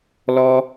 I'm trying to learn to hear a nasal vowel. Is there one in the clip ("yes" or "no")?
no